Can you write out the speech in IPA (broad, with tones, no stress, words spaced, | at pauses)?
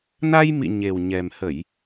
na˧jmḭ˧˨ ɲe˨˩wɲɛ˨˩mhə˧˩˨j